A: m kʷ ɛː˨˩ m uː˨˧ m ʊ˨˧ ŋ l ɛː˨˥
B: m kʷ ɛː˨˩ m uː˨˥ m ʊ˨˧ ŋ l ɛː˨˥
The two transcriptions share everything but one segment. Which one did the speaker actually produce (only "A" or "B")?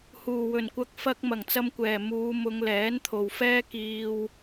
A